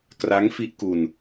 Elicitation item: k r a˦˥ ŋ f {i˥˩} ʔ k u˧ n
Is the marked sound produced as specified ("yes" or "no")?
no